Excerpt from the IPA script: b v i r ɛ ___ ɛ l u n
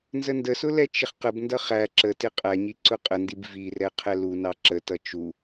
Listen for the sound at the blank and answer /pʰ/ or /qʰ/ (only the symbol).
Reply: qʰ